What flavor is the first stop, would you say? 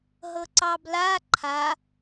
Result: click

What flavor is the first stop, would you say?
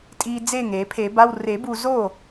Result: ejective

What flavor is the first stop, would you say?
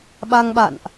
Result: implosive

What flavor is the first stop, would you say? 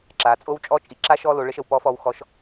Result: click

